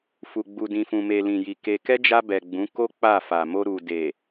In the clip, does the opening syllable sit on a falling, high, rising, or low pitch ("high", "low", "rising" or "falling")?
low